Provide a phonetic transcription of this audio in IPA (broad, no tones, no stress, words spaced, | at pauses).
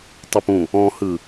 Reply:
tˤopũ | ɔ̃hɯ